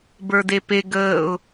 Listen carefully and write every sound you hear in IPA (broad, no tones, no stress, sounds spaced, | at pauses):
b ə˞ d e p e ɡ əː ʊ̯